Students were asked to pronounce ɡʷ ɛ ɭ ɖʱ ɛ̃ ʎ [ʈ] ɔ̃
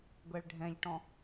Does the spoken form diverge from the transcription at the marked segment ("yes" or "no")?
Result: no